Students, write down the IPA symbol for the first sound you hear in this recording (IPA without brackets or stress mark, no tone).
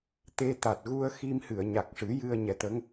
t̪